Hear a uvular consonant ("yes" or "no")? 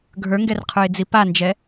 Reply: yes